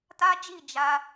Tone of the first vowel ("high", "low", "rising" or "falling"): high